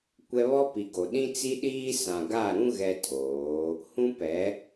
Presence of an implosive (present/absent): present